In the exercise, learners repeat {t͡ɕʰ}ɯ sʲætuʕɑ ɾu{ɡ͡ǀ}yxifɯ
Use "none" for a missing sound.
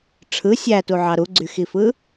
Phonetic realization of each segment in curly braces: ʈ͡ʂʰ, ɡ͡ǀ

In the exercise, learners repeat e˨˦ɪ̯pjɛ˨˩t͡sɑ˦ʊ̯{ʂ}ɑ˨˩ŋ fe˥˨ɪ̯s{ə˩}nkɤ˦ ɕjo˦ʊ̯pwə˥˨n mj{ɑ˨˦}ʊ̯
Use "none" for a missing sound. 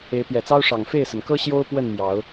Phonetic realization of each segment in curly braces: ʂ, ə˩, ɑ˨˦

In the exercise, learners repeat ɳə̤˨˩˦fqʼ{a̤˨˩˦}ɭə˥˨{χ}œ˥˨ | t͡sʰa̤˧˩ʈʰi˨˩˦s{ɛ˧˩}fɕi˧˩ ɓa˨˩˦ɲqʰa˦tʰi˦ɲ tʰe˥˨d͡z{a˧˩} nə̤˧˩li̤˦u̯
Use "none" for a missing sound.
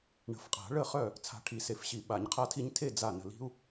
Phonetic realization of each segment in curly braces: a̤˨˩˦, χ, e˧˩, a˧˩

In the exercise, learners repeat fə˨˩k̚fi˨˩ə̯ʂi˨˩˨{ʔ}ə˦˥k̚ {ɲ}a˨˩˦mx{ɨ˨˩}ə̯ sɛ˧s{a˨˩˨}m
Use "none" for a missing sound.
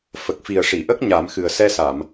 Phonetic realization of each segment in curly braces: ʔ, ɲ, ɨ˨˩, a˨˩˨

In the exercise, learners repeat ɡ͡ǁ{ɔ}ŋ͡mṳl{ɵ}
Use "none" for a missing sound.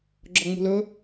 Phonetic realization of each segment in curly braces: ɔ, ɵ

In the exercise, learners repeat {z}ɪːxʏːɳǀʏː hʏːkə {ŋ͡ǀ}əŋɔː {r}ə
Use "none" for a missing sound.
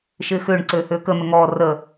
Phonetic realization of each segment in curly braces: ʃ, n̪, r

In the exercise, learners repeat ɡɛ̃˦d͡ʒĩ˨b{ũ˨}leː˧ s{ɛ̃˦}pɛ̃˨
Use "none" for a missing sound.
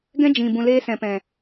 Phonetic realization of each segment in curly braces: ũ˨, ɛ̃˨

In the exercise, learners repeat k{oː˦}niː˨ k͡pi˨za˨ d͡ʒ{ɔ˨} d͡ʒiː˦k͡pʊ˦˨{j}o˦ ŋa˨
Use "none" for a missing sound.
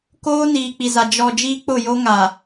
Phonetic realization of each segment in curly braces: oː˦, ɔ˨, j

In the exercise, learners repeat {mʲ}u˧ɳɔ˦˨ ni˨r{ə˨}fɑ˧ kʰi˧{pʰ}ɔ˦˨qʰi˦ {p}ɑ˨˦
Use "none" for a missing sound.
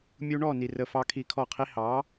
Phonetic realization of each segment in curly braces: mʲ, ə˨, kʰ, h

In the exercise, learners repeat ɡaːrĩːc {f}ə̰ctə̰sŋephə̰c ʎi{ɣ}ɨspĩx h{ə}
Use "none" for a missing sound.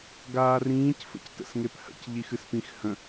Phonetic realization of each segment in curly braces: f, x, ə̃

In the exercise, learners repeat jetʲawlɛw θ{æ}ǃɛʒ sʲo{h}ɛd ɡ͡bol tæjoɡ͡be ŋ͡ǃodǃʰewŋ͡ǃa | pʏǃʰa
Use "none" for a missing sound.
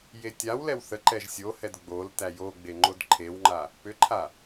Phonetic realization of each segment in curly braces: ə, h

